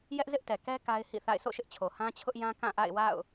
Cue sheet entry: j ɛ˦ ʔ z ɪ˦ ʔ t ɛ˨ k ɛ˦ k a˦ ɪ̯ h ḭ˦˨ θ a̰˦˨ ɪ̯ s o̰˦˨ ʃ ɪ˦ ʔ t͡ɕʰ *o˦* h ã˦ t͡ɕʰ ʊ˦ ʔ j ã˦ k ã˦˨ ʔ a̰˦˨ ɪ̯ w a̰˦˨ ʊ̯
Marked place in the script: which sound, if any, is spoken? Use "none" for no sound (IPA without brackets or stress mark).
o˨